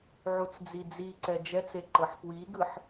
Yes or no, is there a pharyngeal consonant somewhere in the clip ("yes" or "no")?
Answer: yes